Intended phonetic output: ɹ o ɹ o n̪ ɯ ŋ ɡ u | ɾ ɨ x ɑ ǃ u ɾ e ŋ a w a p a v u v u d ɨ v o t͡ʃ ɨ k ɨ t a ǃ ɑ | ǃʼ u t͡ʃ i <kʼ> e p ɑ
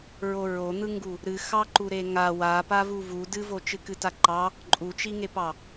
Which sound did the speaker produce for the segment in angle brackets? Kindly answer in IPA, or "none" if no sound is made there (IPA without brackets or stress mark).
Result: ŋ